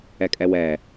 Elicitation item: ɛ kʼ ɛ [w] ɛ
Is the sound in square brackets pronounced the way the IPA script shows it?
yes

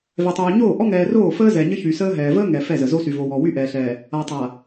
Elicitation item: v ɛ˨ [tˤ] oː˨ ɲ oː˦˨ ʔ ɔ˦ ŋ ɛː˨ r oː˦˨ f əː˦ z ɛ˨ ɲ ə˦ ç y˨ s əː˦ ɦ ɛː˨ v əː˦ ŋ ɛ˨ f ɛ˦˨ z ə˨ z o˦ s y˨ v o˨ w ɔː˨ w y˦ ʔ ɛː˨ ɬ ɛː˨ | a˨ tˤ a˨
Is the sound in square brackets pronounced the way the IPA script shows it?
yes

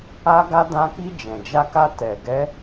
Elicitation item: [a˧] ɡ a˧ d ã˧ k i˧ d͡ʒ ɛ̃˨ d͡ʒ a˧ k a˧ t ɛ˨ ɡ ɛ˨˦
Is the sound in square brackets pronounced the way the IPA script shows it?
yes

